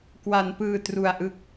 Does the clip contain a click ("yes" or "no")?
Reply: no